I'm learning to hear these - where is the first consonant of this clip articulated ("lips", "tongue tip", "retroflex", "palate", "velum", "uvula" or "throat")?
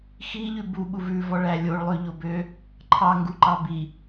velum